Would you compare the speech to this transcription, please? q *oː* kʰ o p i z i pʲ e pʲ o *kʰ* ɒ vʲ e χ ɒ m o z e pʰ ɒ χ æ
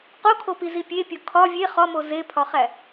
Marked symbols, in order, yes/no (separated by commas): no, yes